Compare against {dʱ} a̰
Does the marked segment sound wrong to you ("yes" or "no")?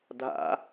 no